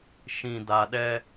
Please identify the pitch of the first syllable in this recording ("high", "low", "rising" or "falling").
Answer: low